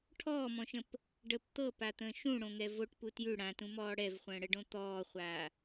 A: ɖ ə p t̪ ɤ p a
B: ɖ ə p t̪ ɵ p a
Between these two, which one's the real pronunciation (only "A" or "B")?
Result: A